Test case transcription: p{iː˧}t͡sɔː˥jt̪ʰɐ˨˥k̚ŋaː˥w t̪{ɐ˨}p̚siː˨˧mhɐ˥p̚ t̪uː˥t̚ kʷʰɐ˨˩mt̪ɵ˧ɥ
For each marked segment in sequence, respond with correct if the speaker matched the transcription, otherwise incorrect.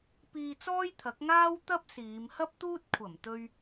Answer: correct, incorrect

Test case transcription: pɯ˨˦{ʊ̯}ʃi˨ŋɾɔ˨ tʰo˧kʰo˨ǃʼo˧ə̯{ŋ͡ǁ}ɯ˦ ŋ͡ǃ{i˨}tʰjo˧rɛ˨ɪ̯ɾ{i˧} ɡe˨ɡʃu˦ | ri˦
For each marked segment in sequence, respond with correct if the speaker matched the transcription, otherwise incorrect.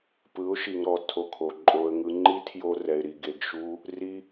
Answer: correct, incorrect, incorrect, incorrect

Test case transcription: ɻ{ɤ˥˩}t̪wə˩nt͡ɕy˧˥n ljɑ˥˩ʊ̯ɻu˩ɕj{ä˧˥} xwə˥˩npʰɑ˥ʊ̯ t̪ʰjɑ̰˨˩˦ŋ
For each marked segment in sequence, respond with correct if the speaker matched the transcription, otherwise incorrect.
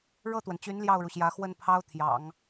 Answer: correct, correct

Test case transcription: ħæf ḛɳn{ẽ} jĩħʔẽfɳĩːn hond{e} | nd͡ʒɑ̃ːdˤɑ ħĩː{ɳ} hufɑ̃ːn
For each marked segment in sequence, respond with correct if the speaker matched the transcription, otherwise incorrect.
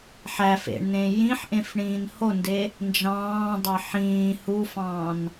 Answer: correct, correct, incorrect

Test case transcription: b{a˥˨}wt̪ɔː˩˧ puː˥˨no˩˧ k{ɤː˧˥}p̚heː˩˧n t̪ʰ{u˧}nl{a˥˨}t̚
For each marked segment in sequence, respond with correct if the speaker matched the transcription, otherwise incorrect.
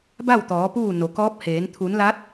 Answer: correct, incorrect, incorrect, incorrect

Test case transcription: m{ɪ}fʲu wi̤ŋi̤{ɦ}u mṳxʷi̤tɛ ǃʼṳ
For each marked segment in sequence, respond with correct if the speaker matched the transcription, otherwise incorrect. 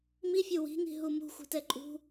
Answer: incorrect, correct

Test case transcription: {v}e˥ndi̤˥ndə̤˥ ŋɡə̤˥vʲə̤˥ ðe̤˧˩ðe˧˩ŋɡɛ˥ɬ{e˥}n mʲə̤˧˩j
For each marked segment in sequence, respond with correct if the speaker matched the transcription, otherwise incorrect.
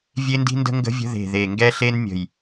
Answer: incorrect, correct

